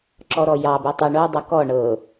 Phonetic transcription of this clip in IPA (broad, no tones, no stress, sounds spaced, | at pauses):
ǁ ɔ ɾ ɔ j ɑ b e tˤ o ɳ o dˤ u k ɔ ɳ ɤ